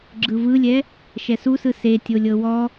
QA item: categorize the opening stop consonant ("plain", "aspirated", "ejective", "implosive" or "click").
click